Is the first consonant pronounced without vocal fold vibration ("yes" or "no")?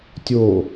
yes